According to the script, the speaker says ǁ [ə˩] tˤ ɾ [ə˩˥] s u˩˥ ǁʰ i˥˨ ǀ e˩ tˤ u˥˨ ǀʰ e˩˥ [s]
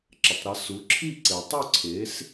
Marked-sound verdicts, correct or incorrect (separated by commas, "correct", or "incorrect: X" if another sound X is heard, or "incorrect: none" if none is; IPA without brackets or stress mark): correct, correct, correct